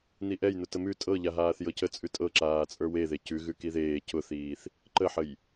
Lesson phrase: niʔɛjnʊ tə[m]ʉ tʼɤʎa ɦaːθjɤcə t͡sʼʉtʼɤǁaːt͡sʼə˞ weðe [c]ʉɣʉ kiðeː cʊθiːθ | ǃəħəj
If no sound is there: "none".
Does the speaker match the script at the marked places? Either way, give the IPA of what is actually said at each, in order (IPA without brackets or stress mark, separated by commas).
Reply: m, c